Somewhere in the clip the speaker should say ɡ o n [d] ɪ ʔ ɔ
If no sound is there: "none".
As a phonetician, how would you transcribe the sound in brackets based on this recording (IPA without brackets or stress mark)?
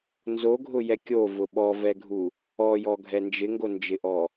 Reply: d͡ʒ